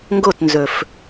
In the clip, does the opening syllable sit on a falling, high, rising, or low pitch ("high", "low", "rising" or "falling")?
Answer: falling